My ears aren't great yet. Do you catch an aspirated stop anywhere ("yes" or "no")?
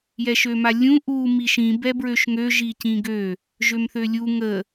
no